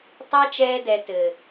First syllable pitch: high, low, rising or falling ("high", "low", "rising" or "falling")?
high